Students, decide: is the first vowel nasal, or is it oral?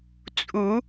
oral